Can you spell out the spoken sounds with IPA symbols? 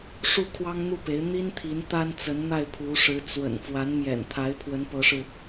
ʂ u˥˩ kʰ w ɑ˥ ŋ n̪ u˥˩ p e˧˥ ɪ̯ n̪ i˥ n t̪ʰ i˧˥ n t̪ a˥ n t͡s ə˧˥ n n̪ a˥˩ ɪ̯ pʰ u˧˥ ʂ ɻ̩˧˥ t͡s w ə̰˨˩ n f w a˧˥ n m j ɛ̰˨˩ n t̪ʰ a˧˥ ɪ̯ pʰ w ə˧˥ n p ɤ˧˥ ʂ ɻ̩˧

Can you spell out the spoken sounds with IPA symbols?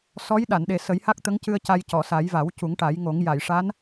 s ɔ˧˥ j ɗ a˨˩˨ n ɗ e˨˩ s ə˨˩˦ j h a˦˥ k̚ t̪ ə˧˥ ŋ c ɨ˧ ə̯ c a˧ j c ɔ˨˩˨ s a˨˩˦ j v a˨˩˦ w c u˨˩˦ ŋ ʈ a˨˩˦ j ŋ o˨˩˦ ŋ j a˨˩˨ j ʂ a˧˥ n

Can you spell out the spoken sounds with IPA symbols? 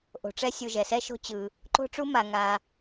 ʔ o̤˨ ʈ͡ʂ ɛ˥ sʲ u˨ ʒ ɛ˩ s ɛ˥ ʃ o̤˦ t͡ɕ ɯ˩ | ǃ o̤˥ ʈ͡ʂ u˥ m a˨ ŋ a˨

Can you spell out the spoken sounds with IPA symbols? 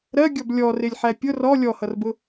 ɾ ɜ ɡʲ ɔ b lʲ ɔ r ɪ lʲ ħ æ pʲ ʊ r ɔ lʲ ɔ h ʌ r b ʊ

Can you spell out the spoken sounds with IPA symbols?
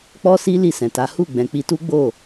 k͡p ɔ˦ s i˦ l i˦˨ s ɛ̃˨ t a˨˦ h u˦˨ ɡ͡b ɛ̃˨ k͡p i˧ t u˦ ɡ͡b o˦˨

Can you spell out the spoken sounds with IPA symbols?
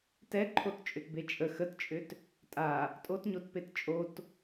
t ɛ ǃʰ o t t͡ʃʼ ʏ t b e t͡ʃʼ ə x ə t t͡ʃʼ ʏ t | tʼ a | tʼ o t ɲ o t p e t t͡ʃʼ o t

